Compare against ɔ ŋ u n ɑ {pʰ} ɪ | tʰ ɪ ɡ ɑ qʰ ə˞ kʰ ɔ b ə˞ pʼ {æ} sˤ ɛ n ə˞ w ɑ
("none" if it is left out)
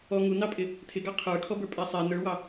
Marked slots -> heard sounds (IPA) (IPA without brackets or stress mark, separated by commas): pʼ, æ